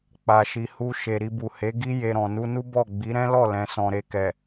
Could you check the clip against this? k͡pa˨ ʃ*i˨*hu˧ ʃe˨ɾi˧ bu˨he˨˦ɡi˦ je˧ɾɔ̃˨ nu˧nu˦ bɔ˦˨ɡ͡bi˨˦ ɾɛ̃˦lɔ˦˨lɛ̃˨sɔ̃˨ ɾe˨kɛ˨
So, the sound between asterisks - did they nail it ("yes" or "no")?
yes